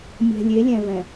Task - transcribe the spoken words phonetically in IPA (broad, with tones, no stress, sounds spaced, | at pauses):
mʲ ɛ̤˨ lʲ e˨˦ lʲ ɛ̃˨ v ɛ̃˨